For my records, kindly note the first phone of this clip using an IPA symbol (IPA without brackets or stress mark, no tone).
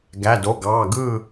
ɡ